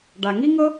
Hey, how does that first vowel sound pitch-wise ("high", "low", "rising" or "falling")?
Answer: low